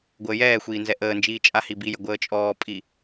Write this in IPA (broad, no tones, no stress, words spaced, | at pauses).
ɡʷəːjɛːxʷiː nzɛʔəːnd͡ʒiː t͡ʃʼahibijə ɡʷəːt͡ʃʼɔːpʼi